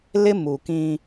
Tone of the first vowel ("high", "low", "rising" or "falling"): high